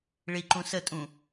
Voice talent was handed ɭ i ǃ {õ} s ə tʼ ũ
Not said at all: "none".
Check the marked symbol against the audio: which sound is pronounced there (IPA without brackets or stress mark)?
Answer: ũ